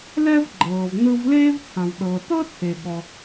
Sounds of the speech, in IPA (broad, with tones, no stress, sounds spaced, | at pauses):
l ɛ˥ v ɡ͡ǃ ɤː˩ v n ɯ˧ v l eː˥ v t͡sʰ ã˩ v ɗ ɤː˩ t ɤ˥ t͡sʰ e˩ ɠ ɔ˩